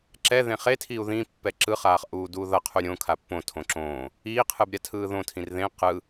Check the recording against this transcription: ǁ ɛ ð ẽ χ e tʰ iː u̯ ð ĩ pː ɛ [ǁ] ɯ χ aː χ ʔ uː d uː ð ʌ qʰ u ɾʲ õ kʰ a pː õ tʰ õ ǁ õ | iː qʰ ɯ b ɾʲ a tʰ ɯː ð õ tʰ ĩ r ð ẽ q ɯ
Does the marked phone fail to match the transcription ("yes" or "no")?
no